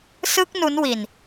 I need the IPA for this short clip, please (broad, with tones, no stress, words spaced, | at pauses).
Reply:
sɯ˦˥k̚ nu˦˥nwi˧n